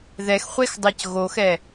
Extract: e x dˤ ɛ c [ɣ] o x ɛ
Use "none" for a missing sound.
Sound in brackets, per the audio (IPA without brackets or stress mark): ɣ